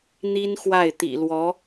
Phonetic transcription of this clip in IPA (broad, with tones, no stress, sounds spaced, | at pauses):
n̪ i˥ n x w a˥˩ ɪ̯ t̪ ḭ˨˩ l w ɔ˧˥